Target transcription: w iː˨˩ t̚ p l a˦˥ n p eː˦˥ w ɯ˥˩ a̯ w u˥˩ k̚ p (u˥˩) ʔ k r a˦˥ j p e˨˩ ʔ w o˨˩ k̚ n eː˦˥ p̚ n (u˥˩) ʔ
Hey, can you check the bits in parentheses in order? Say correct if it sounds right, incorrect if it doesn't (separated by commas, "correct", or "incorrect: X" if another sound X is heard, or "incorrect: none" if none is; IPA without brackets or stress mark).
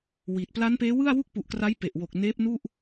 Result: incorrect: u˨˩, correct